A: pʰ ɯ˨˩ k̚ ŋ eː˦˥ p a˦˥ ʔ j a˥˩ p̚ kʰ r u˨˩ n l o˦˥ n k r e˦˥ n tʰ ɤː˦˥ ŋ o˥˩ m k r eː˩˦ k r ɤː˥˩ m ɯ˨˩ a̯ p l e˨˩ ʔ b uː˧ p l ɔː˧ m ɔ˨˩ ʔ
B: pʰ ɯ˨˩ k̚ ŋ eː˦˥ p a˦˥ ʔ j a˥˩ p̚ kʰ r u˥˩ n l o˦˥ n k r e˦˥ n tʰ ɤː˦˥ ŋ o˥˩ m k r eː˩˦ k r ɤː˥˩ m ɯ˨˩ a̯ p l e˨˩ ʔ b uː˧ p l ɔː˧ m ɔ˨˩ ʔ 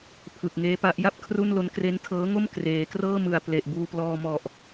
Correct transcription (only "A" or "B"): B